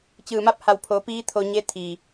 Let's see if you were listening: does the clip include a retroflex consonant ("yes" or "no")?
no